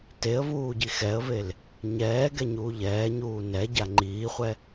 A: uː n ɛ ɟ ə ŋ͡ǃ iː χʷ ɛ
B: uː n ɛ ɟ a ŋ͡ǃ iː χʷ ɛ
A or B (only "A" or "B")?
B